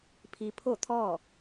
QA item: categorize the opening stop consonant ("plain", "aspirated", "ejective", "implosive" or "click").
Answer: aspirated